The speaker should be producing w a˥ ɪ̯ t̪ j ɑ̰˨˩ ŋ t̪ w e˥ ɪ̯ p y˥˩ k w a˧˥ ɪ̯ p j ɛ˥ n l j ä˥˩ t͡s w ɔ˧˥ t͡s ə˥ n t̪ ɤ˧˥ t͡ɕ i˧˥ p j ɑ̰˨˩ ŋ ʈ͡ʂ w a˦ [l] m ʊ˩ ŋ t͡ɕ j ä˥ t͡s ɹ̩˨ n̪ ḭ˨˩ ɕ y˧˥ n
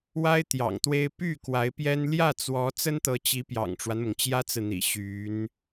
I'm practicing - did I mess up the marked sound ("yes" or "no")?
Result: yes